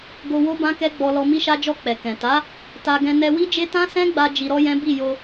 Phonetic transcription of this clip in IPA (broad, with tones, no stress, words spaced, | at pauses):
ɡo˧wo˦ bã˦kɛ˦ɡ͡bɔ˧lɔ˧ mi˧ʃa˧d͡ʒɔ˧ k͡pɛ˨kɛ̃˨ ta˨˦ | ta˧ ɡɛ̃˧nɛ˧wi˦d͡ʒe˦ tã˦sɛ̃˦ɡ͡ba˧ d͡ʒi˧ɾɔ˦jɛ̃˦ bi˦˨jo˧